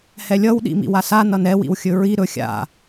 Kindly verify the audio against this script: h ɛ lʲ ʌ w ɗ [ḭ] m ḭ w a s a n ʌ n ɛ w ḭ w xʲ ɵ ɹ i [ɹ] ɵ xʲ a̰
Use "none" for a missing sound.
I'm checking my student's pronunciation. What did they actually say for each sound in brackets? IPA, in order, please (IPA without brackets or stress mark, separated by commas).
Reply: ḭ, ɾ